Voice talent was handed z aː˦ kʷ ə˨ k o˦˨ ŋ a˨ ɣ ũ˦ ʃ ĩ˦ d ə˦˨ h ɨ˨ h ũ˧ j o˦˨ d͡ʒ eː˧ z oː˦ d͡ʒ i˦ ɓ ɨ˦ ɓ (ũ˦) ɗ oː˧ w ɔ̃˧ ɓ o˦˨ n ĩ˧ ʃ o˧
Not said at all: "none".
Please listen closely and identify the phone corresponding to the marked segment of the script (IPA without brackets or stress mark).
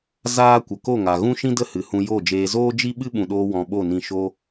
ũ˨